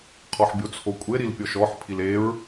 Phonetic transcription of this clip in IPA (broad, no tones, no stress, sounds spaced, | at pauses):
qʰ ɔ ħ bʲ o t͡sʰ o kʷʼ e ɾ i l pʲ ɔ ʃ ɔ ħ pʰ i l e ɹ